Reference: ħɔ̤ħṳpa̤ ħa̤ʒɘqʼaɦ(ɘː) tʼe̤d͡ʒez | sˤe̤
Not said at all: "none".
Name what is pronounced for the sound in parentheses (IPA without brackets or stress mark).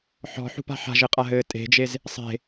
ɘː